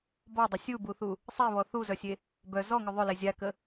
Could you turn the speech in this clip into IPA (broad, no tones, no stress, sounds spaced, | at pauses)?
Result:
b ɔ dˤ ʏ sʲ u b u θ u | sˤ e β ɔ θ u z œ sʲ e | b œ z ɔ ŋ ʏ ðˤ ʏ l e zʲ a k ə